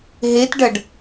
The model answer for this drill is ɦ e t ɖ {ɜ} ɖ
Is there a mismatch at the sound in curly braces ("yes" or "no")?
no